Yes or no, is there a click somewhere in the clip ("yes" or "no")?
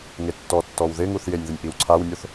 yes